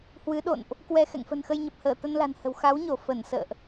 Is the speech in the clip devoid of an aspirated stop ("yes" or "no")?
yes